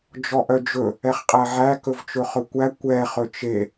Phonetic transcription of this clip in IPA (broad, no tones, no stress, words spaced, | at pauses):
d͡ʒɔʔœd͡ʒɵ | ɛχqʼæʕæ kɵvt͡ʃɵχɵkʷæ kʷɛ χɵt͡ʃe